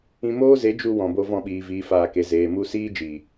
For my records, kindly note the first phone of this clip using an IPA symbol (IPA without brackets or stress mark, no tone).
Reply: ĩ